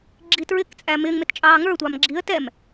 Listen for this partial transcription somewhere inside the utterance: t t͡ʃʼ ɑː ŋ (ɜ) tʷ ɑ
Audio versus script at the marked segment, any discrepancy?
yes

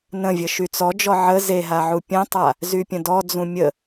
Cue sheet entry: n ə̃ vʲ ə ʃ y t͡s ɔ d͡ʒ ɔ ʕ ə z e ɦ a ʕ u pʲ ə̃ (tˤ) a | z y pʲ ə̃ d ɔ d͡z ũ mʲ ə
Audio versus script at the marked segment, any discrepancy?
no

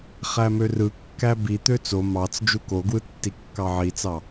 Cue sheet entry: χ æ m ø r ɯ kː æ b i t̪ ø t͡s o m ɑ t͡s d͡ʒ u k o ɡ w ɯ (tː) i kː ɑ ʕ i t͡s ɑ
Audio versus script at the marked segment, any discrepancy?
no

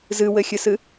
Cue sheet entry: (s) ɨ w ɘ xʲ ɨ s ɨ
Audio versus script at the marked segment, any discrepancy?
yes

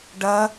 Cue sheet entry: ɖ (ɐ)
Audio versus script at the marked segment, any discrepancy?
no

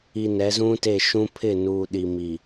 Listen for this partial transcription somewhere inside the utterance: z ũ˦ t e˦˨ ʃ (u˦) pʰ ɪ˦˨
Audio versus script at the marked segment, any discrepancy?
yes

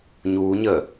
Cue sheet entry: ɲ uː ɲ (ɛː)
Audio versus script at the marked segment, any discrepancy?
yes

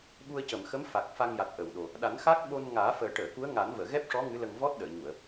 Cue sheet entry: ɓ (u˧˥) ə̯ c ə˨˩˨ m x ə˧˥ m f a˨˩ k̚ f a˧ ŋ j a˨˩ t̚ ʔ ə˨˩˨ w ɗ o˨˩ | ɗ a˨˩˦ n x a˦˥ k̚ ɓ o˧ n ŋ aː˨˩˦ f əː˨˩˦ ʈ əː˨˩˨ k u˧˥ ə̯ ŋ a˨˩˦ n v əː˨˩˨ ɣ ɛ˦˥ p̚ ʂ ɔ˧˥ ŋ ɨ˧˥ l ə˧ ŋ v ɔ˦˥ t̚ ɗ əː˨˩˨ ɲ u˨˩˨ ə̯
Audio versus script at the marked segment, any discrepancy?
yes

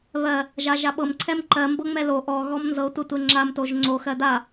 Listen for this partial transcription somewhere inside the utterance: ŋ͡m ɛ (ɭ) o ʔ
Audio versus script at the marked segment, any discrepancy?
yes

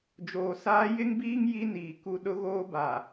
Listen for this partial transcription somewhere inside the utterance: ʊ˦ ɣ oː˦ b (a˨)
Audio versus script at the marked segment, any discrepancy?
no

